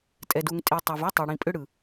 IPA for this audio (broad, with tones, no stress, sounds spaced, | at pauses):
tʼ ɛ˨ d u˨ ŋ tʼ i˨ tˤ ɛ˨ v u˦ tˤ i˨ ɽ ĩ˨ pʼ ʏ˦ ɽ ɯ˨